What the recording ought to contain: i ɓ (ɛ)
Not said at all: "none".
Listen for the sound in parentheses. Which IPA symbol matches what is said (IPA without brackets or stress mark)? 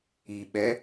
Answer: ɛ